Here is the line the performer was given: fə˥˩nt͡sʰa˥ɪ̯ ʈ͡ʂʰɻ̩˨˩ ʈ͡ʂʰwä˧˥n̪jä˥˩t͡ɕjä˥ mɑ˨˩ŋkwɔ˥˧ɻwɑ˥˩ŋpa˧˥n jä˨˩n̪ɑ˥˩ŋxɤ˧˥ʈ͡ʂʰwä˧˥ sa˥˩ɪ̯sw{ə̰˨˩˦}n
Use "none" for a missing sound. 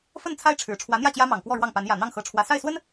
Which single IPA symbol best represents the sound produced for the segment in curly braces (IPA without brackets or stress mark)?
ə˥